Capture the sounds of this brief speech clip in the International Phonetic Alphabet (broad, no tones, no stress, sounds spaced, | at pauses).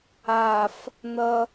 a f | n̪ ʌ